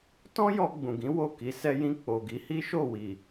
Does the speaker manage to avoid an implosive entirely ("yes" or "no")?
yes